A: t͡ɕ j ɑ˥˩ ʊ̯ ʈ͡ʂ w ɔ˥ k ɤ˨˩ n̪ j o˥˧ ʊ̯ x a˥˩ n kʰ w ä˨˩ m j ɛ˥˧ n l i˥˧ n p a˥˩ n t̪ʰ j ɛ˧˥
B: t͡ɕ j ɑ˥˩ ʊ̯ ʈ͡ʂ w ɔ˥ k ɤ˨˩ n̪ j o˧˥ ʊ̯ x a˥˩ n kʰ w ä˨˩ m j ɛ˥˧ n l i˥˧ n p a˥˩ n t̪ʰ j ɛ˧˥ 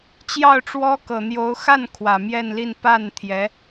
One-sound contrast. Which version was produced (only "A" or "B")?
B